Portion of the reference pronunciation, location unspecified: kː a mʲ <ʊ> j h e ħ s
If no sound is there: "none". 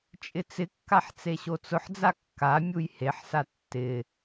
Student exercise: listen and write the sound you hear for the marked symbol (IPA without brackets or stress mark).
u